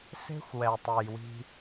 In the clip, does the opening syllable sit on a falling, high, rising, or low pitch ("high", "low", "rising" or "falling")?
high